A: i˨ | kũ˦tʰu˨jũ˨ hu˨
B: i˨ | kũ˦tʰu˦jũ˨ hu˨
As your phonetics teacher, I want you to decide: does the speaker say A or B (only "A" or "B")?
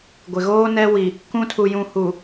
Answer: A